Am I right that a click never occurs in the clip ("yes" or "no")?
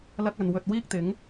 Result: yes